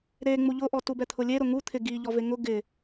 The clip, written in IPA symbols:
ɾ e ŋ͡m u ʎ ʊ ʔ ɔ t u b ɛ t̪ʰ ʊ lʲ e ɾ ʊ ŋ u t̪ʰ ɪ ɡ i ʎ ɔ v e ŋ ʊ ɡ ɪ

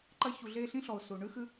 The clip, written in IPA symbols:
ǃ ɐ˦ ç u˨ ɮ e˦ ɬ ĩ˥ ɬ ɔ˨ ʊ̯ s u˩ ɳ ʉ˥ x ʉ˦

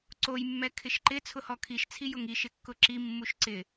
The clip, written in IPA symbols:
ǀ o j mː ɛ kʰ ɪ ʃ ǃ ɪ t͡sʰ ʊ h ɔ kʰ i ʃ t͡sʰ i j ʊ ŋ i ʃ ɪ kː ʊ ǁ i mː u ʃ ǀ ɪ

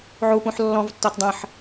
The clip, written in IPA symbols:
ʕ u p ũ ħ lː ɔ̃ v tː ɔ t dˤ ə̃ ħ

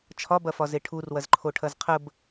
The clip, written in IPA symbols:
t͡ʃʰ ɒ b ɐ f ɒ z e ʈʰ u r w ɐ z ǃʰ o ʈʰ ɐ z qʰ ə b

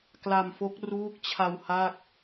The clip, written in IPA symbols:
k l a˧ m f o˦˥ k̚ r uː˦˥ k̚ t͡ɕʰ a˧ w h a˥˩ k̚

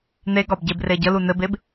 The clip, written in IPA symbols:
n̪ e ɡ ɒ b ɟ e b r e ɟ ə l u n ɘ b e b

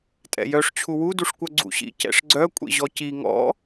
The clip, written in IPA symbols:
tʼ ɛ̰ j œ ʂ t͡ɕʰ u w u d u ʂ kʷ œ ɡ͡ǀ ṵ ɕ ḭ c ɛ̰ ʂ ɡ͡ǀ œ kʷʼ ḭ ʑ ɔ c i ŋ ɔ̰

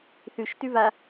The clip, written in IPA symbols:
θ ʉ ʃ t ʉ v a

